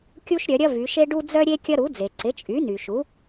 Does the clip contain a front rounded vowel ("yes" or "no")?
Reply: yes